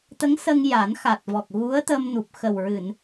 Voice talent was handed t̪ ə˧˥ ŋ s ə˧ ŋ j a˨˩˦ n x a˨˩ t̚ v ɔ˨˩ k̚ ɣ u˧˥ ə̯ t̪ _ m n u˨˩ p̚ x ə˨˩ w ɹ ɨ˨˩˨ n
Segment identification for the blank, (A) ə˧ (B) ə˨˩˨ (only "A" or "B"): A